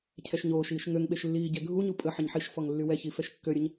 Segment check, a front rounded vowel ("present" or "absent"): present